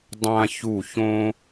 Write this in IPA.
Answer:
dˤ ã˨ ç u˦˨ ç õ˦

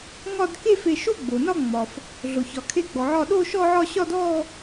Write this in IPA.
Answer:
ŋ ɒ˥˧ d k e˥˧ f e˧˩ ʃ o˥˧ ɡ͡b o˩ n ɒ˥˧ ŋ͡m ɒ˩ f | ɮ o˩ ç ɒ˩ kʰ e˧˩ ɡ͡b ɔ˩ ʕ ɒ˧˩ ɗ o˥˧ ʃ ɔ˥˧ ʕ ɒ˥˧ ɕ ɒ˥˧ d ɔ˥˧

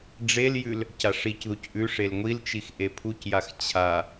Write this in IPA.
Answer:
ɖ͡ʐ e l j ʉ l | c a ʂ i c ð u c ʔ ʉ ʂ e l ŋʷ i l t͡ʃ i x ʔ e pʰ u c j a x t͡ɕʰ a

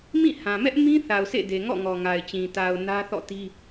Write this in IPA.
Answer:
m ĩ˦˨ h ã˨ m ɛ˦ ʔ m ĩ˦ θ a˨ ʊ̯ sʰ ḛ˦˨ d e˨ ŋ ɔ̰˦˨ ŋ ɔ˨ ŋ a˨ ɪ̯ t͡ɕ ĩ˨ t a˨ ʊ̯ n ä˦ θ ɔ̰˦˨ t i˦

